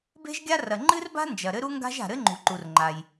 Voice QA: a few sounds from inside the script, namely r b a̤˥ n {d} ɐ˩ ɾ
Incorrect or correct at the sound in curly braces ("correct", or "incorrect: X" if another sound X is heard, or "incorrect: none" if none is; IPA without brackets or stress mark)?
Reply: incorrect: d͡ʒ